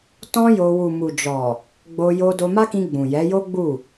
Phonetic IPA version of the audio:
t ɔ̃˦ j o˧ w u˨ m u˨ d͡ʒ ɔ˨ | ɡ͡b o˧ j o˧ d o˧ m a˦ k ĩ˧ ɡ͡b ũ˨ j ɛ˨˦ j o˦ ɡ͡b u˦˨

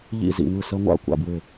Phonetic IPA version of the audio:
ʎ ḭ˥˩ z ḭ˥˩ ŋ ɯ˥˩ s ə˦˥ ŋʷ a̰˥˩ kʷ a̰˥˩ b w ɪ˥˩

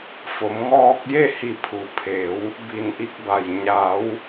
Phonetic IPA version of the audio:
f o˩˧ m ŋ ɔː˧ k̚ j e˥˨ h i˧˩ pʰ u˩ pʰ e˩˧ w | b i˧˩ n ʔ i˧ k̚ b a˩ j ɲ a˩˧ w

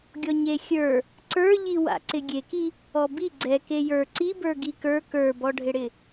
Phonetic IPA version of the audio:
ɡʲ ɔ ɲ e xʲ ə˞ | ǀ ə˞ ʎ i w a̰ ǀ ɪ ɡʲ e k i | ɔ b i ɡ͡ǀ ɛ k e j ə˞ ǀ i b ə˞ ɡ i k ə˞ k ə˞ b ɔ ɖʱ ɪ ɽ ɪ

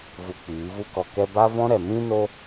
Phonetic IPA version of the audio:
v u˧ k͡p iː˨˦ v u˦ k ɔ˧ k ɛ˦ b a˦ v ɔ̃˦ ɾ ɛ˨ m ĩ˦ n o˦

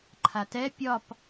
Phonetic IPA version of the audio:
ǃʰ a t ɛ pʲ ɒ p

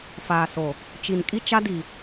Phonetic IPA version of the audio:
f aː˨ s o˨ | t͡ʃ i˨ n kʼ i˦ t͡ʃ a˦ d i˨

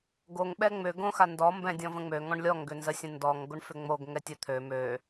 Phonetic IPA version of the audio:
ɡ o ŋ ɓ ɛ ŋ͡m ʏ ɡ õ x a n d ɔ m b ɛ̃ dʲ ɔ̃ v ə̃ ŋ͡m ø ŋ ɔ̃ ɳ lʲ ɔ ŋ ɡ ʏ n z ə sʲ ə̃ n d ɔ ŋ ɡ o ɳ f ʏ ŋ͡m o ɡ ŋ ɛ tʲ ə t̪ʰ ø m ø

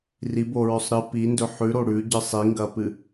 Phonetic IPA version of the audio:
r i b o ɹ ɵ sˤ ɾ ɨ p i n d ɵ ħ ʉ ɾ o ɽ ʉ ɟ ɨ sˤ i ŋ ɡ ɐ p ɨ

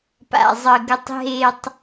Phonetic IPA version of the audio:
p a̰˨ zˤ ə˨ ɡ ə˨ tˤ ɦ e˨ tˤ

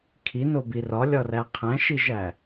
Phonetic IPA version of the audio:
kʰ i n o b i r ɒ lʲ ɒ r æ qʰ æ̃ ʃ i ʒ æ

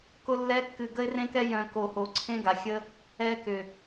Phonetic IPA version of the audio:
k ʊ˦ lː ɛ˦ kː ɨ˨ ɡ ə˧ ɪ̯ r ẽ˧ k ɛ˧ j œ̃˨ k o˨ h o˨ ǀʰ ẽ˦ ɡ a˨ xʲ ə˦ | ɛ˧ k ʏ˨

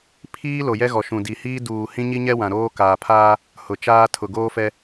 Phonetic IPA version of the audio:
pʰ iː˦ l o˨ j ɛ˦ ɣ ɔ˨ ʃ ũ˨ d i˨ h iː˦ d uː˨ h ĩ˦ ɲ i˦ ɲ ɛ˦ w ã˨ ɾ oː˦ k aː˨ pʰ aː˦ | h ʊ˨ t͡ʃ aː˦ tʰ ʊ˨ ɡ oː˦ f ɛ˦

